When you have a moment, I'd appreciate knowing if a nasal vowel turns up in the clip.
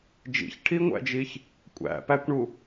no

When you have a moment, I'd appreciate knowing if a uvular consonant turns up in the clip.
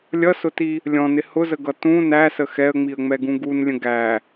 no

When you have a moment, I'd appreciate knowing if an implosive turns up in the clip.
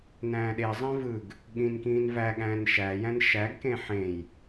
yes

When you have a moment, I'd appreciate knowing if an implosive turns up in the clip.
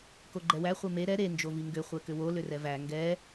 no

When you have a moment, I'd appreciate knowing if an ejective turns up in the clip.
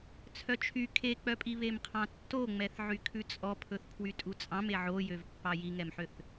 yes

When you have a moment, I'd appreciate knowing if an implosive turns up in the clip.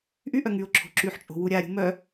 no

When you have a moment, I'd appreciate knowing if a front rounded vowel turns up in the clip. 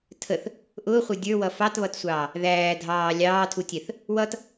no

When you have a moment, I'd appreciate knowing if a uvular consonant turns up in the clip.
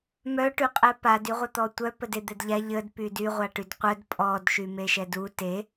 yes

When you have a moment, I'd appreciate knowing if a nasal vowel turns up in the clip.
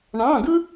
yes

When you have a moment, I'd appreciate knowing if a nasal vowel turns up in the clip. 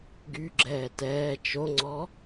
no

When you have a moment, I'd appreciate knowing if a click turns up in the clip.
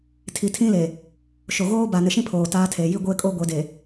no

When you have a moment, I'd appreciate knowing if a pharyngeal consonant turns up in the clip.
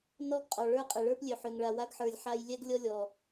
yes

